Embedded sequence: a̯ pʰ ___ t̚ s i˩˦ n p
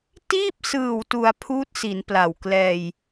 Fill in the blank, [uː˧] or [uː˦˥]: uː˦˥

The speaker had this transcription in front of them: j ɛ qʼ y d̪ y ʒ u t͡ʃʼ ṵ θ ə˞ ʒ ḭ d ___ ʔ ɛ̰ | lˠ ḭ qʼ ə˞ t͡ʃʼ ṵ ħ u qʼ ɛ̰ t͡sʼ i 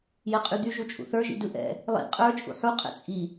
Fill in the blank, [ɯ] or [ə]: ɯ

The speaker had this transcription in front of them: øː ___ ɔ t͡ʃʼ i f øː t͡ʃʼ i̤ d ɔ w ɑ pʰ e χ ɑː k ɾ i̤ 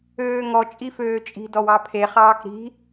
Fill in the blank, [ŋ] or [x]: ŋ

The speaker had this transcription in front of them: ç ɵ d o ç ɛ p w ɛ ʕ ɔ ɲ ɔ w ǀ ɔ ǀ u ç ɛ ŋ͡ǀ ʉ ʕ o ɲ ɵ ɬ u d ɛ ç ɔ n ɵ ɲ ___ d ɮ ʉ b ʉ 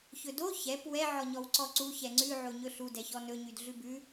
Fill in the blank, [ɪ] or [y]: y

